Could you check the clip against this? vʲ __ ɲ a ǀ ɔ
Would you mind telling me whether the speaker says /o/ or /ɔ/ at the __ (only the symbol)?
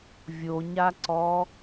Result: o